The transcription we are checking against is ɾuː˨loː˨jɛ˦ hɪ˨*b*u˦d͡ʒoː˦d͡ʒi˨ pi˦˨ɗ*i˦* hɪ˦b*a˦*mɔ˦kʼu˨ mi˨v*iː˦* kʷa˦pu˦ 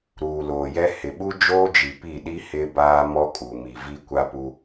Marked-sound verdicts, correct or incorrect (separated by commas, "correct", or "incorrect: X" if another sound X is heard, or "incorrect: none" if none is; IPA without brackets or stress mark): incorrect: ɓ, correct, incorrect: aː˦, incorrect: i˦